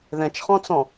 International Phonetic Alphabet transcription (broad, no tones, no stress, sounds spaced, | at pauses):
ð ɛ̃ t͡ʃ χ ɔ̃ t͡s ɔ̃